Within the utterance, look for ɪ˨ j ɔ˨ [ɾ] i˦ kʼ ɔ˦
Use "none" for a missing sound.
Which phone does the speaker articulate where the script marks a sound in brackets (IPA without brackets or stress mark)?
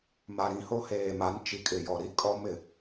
ɾ